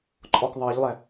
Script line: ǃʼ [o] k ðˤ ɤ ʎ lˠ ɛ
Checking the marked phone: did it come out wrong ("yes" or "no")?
yes